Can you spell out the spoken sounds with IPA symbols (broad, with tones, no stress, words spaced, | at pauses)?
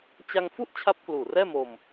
t͡ɕa˧ŋ fu˥˩ʔt͡ɕʰa˦˥p̚ kluː˨˩rɛː˥˩mo˧m